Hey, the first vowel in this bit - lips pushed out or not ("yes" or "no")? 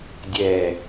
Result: no